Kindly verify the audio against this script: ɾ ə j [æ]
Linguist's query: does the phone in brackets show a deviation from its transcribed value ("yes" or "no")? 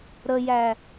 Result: no